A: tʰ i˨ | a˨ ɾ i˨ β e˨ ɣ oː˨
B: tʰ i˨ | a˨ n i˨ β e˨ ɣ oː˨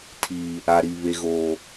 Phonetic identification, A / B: A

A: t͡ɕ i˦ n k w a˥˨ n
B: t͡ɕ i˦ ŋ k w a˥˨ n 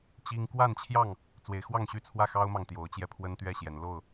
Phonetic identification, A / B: B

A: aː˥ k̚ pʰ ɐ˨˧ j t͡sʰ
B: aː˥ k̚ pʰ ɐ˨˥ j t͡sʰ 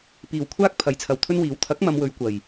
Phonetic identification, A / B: B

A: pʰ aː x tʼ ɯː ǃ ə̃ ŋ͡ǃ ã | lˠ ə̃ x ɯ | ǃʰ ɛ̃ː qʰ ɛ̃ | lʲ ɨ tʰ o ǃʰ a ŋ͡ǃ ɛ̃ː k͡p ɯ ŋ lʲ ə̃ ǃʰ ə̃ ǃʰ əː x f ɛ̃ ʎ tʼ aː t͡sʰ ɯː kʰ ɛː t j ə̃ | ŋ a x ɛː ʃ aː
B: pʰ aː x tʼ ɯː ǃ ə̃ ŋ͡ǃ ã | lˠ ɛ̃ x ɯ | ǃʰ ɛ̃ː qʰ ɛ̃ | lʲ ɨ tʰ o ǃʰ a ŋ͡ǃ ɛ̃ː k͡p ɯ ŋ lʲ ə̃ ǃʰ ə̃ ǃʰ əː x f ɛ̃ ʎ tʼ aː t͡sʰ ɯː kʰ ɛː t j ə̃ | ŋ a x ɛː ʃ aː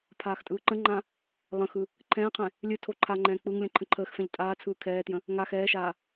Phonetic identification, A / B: A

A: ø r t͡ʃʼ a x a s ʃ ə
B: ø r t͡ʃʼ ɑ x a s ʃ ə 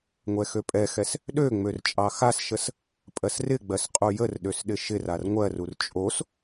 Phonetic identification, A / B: B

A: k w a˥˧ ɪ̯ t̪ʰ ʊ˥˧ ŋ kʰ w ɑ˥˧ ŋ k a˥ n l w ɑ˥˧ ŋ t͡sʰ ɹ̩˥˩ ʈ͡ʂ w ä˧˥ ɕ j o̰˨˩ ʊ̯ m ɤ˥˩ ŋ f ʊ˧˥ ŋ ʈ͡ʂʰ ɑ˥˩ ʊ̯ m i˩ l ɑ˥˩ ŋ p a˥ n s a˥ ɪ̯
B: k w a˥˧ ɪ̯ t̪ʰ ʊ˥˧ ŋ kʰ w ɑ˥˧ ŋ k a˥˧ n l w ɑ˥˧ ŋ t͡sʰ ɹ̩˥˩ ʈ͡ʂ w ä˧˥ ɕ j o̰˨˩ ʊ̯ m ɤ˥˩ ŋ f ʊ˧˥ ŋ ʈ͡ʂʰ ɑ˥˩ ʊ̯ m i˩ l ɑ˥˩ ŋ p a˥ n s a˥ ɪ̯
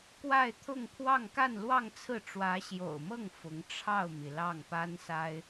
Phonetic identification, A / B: B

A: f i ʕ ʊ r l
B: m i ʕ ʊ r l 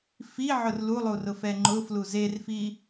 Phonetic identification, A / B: A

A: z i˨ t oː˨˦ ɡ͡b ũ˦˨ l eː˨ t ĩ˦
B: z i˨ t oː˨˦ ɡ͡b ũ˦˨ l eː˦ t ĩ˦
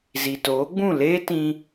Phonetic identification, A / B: B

